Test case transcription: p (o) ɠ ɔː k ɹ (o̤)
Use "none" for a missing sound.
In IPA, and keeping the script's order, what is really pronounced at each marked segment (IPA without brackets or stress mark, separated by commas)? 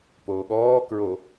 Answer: oː, o